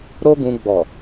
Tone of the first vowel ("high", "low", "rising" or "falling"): high